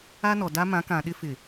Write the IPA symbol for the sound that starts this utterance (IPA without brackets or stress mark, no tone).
a